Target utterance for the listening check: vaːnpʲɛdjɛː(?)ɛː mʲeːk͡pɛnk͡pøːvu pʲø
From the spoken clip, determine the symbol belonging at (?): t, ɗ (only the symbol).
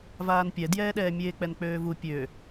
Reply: ɗ